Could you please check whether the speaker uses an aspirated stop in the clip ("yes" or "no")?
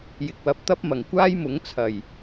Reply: yes